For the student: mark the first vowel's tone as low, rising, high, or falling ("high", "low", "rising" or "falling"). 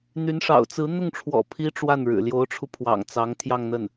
rising